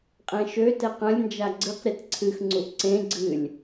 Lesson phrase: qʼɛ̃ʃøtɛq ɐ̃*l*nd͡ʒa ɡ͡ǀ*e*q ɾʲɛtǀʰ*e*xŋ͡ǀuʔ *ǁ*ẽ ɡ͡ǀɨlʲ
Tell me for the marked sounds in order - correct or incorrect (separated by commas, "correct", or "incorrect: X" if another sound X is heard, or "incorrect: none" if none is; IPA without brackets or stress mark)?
incorrect: lʲ, incorrect: ɨ, incorrect: ɨ, incorrect: ǀ